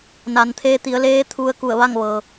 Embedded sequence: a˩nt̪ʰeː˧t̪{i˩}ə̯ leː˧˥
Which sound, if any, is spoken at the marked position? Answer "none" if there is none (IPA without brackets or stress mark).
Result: i˩˧